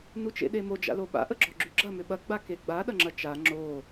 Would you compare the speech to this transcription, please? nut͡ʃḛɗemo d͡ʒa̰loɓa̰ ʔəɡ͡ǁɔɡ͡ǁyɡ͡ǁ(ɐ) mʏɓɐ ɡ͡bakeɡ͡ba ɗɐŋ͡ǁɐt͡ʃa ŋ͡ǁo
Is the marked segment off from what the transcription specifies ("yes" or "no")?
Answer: no